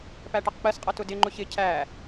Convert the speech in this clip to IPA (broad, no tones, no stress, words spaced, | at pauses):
pæʈʌqk͡pɜsqʼʌ tʊdɪŋ͡ǃʊç ɪ cʰæ